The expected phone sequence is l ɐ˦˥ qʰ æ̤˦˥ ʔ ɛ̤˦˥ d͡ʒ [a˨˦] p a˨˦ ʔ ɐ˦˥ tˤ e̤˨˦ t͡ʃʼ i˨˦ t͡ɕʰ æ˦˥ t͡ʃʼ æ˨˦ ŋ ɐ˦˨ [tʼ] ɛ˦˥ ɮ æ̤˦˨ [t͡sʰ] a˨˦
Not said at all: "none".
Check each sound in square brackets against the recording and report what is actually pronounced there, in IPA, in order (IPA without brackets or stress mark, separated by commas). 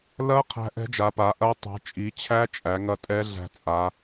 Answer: a˨˦, tʼ, t͡sʼ